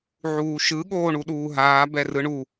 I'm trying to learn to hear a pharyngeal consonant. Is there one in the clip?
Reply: yes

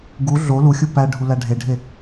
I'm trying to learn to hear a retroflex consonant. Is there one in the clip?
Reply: yes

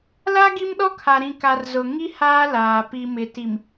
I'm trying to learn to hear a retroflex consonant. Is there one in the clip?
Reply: no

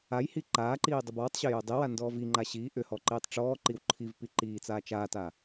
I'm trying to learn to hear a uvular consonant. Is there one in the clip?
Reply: no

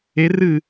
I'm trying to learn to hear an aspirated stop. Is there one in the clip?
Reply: no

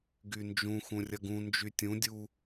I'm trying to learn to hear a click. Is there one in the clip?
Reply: no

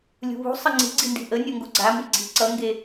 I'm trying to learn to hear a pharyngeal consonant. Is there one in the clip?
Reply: no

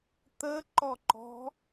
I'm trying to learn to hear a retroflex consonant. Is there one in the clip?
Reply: no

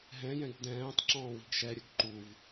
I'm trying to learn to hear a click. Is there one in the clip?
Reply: yes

